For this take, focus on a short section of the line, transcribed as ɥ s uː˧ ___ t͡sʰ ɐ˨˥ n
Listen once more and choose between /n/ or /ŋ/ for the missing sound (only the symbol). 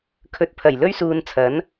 n